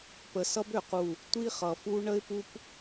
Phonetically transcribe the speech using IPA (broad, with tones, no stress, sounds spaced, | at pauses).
p ə˨ s ʌ˦ b ø˨ q u˦˨ | tʷ i˦ χ ʌ˨ f u˦ ɳ ə˦ ɪ̯ p u˦ p